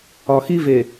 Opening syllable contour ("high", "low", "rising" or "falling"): low